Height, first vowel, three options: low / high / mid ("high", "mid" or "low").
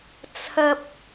low